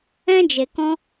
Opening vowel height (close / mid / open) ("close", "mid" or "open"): mid